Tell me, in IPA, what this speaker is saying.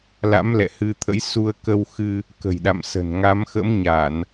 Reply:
la̰˧˥mlɛ̰˧˨hɨ˧t̪ʰə̰˧˥j su˧ə̯kə˧wxɨ˧ | kə̤˨˩jɗa̰˧˨msə̤˨˩n ŋa˨˦mxə̰˧˥mɲa˧˩˨n

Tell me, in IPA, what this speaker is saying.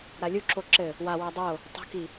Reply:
ɾalʲuǁo ǁɘ | wawæ dˤo | tˤo̤ki

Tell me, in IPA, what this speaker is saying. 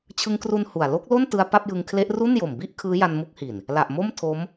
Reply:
t͡ɕʰɯ˧ŋkru˧n hu˨˩a̯ lo˦˥k̚lo˥˩ntɯ˧a̯ pa˥˩p̚jɯ˧ŋ kʰle˦˥ʔ ru˥˩njo˨˩m bi˥˩ʔ kʰɯː˦˥ja˧nmu˦˥k̚hi˨˩n | la˨˩ʔmo˥˩mtʰo˦˥m

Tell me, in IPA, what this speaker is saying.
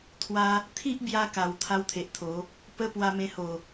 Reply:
t̪ʰwa˧ | t̪ʰi˦ʔbja˧ ka˨˩w t̪ʰa˦wt̪ʰe˨ʔt̪ʰo˨˦ | pə˦ pwa˧mẽ˧ho˨˩

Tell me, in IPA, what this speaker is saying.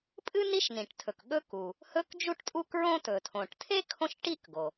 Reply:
pʼɨ˥ ni˥ʃnĩ˩ʈtʰɵ˩k ɠɵ˥ku˩ | hɵ˥kd͡ʒu˥ʈtʼu˥kɹõ˥ tɵ˩tʰõ˩ʈtʰe˥ kʰõ˥ʃʈi˥kɡo˩

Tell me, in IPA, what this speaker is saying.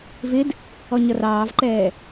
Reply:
vɪd | ɔɲʌrɑːvǃɛː

